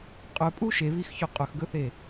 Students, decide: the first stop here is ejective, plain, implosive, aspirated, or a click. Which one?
ejective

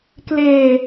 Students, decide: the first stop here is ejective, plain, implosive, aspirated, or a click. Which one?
plain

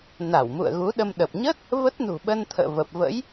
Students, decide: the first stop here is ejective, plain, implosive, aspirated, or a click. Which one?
implosive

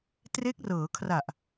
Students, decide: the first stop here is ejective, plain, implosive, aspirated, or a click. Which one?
plain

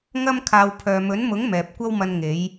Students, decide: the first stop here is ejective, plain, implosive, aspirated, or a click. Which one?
aspirated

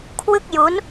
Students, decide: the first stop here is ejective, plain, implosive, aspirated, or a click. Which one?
aspirated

